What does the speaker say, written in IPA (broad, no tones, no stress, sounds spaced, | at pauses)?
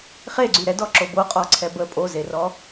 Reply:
χ e ɡ͡ǀ y ɾ ɛ d ɔ ǁ o b o qʼ ɔ ǀʰ ɛ b ə pʼ o z e r ɔ